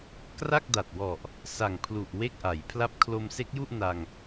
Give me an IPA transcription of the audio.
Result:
k r a˥˩ k̚ d a˨˩ t̚ w ɔ˨˩ ʔ | s a˨˩ ŋ pʰ l u˨˩ ʔ w e˥˩ k̚ ʔ a˩˦ j pʰ l a˥˩ p̚ kʰ l o˧ m s e˦˥ k̚ j u˥˩ ʔ n a˧ ŋ

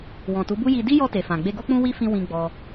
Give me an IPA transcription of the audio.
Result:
w ɔ̃˨ t u˨˦ b u˦ j i˧ d i˦ j ɔ˧ t e˨ f ã˨ ɡ͡b e˧ ɡ o˦ k͡p ũ˦ w i˦ f ĩ˧ w ĩ˧ ɡ͡b ɔ˧

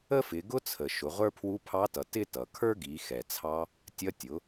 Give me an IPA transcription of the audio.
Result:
ə˥ f ɪ˩˧ ɡ ʊ˥ t͡sʰ ə˩ ʃ ʊ˩˧ ʁʷ ə˞˥ pʰ w u˧˥ pʰ ɑ˧˥ t ʌ˩˧ t ɪ˥ t ʌ˩ kʰ ə˞˥ ɡ i˩˧ x ɛ˩ t͡sʰ ɑ˧ | tʲ ʌ˧ tʲ ʊ˩˧

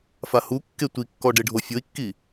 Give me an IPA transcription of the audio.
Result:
f a h u kː e tʷ i kː ɔ ɖ e ɖʱ o fʲ o i̯ kː i

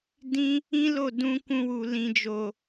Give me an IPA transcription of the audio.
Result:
d ĩ˦ | ĩ˦ l o˦˨ d ũ˧ k ũ˧ w u˨ l ĩ˨ d͡ʒ o˨

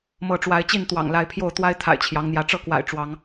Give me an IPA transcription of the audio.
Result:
m ɤ˨˦ ʈ͡ʂ w a˨˦ ɪ̯ t͡ɕ i˥˨ n t̪ w ɑ̰˨˩ ŋ l a˨˦ ɪ̯ pʰ j o˥˨ ʊ̯ t̪ w a˦ ɪ̯ t̪ʰ a̰˨˩ ɪ̯ t͡ɕʰ j ɑ˨˦ ŋ n̪ j ä˨˦ ʈ͡ʂ ɤ˥˨ k w a̰˨˩ ɪ̯ ʈ͡ʂ w ɑ˨˦ ŋ

